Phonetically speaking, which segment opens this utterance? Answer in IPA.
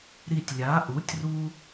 ɾ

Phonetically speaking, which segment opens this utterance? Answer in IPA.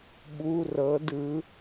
ɓ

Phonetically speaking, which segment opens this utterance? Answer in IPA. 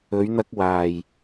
ɵ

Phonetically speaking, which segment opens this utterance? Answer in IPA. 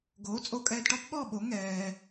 ɡ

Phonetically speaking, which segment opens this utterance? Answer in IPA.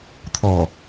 t̪ʰ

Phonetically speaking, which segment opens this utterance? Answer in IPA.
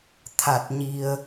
t̪ʰ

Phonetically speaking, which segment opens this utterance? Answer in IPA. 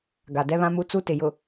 ɡ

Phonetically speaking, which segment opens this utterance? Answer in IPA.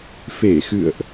f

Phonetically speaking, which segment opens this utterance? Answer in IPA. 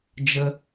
d͡ʒ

